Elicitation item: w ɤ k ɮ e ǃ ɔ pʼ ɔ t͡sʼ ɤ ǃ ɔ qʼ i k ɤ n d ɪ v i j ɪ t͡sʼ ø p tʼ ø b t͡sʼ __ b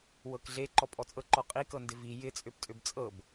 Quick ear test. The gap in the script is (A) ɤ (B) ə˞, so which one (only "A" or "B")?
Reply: A